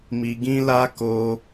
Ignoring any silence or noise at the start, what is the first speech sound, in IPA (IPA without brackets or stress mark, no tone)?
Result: m